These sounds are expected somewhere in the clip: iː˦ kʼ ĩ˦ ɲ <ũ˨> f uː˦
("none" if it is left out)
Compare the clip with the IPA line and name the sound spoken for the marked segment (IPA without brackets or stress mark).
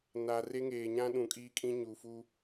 u˨